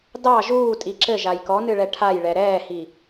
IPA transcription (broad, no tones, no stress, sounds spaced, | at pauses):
d ɑ ʒ uː tʼ i ǁ ɘ ʒ a j k ɔ n ɨ ɭ ɛ ʈʰ a j ɭ ɛ ɾ ɛː h i